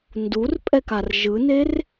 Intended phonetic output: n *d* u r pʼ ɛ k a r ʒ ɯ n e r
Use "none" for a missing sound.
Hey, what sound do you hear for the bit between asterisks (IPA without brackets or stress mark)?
d